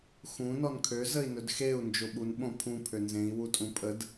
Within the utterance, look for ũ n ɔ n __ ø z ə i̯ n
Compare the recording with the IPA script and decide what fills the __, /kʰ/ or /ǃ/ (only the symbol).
kʰ